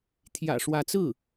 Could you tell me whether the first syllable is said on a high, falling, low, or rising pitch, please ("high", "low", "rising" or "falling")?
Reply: low